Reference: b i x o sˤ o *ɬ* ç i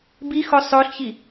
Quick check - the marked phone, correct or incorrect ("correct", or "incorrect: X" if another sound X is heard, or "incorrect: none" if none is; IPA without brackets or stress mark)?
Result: correct